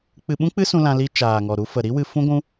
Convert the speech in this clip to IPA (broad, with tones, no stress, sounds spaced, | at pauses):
k͡p ɨ˧ ɓ ũ˦ k͡p ɨ˦ s ũ˧ l ã˧ l i˧ t͡ʃ aː˨ ŋ ɔ˨ ɾ u˧ f ə˨ ɾ i˦ w ɨ˧ f ũ˦ ɡʷ ũ˦